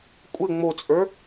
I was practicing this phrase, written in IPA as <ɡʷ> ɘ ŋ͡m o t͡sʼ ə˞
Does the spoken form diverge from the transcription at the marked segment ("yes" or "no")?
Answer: yes